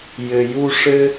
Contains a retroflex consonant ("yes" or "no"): yes